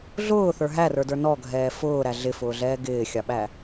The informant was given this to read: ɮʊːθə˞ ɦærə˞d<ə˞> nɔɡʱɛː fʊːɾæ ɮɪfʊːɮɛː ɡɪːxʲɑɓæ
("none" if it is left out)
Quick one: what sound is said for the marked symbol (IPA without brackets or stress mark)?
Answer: ə˞